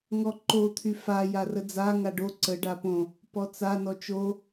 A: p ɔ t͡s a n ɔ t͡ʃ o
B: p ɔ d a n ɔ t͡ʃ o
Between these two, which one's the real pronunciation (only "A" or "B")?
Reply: A